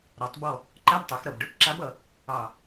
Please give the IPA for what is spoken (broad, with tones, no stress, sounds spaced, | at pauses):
ɾ ɔ˩˧ tˤ b ɔ˦˨ | ǃ a˧˥˧ b tˤ ø˩˧ x ɾ ʌ˨˩ b ɖ ø˦˨ p ǁ a˧˥ b ʌ˩˧ | ɑ˨˩